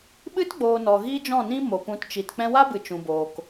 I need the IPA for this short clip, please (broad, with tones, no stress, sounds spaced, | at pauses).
ɓ ɨ˦ t ɡ͡b oː˨ n ɔ˨ ɣ iː˦ d͡ʒ ɔ̃˦˨ n ĩ˦ m o˨ p ũ˨˦ t t͡ʃ i˨ t k͡p ɛ̃˧ w a˦ b ɨ˨ t͡ʃ ũ˨ b oː˨ k